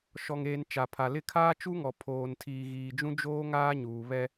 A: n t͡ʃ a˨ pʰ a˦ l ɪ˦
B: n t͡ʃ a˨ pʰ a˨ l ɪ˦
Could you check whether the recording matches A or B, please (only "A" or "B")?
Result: B